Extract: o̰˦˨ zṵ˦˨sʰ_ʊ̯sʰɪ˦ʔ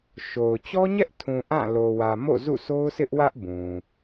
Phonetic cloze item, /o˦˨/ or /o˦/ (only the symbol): o˦